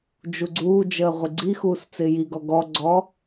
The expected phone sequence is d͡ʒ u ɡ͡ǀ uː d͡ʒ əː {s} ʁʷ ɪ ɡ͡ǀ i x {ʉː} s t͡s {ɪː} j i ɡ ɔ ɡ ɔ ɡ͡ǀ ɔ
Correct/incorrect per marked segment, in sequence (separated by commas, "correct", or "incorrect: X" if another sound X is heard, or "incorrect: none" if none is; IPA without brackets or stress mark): incorrect: none, incorrect: uː, correct